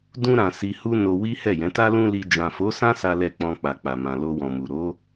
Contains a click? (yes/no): no